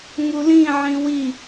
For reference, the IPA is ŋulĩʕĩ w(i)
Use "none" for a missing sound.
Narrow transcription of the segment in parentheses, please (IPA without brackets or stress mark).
i